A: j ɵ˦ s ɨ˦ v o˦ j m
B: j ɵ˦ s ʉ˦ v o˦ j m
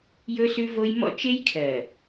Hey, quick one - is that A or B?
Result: B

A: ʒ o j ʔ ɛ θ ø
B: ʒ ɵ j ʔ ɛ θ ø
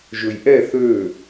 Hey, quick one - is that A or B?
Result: B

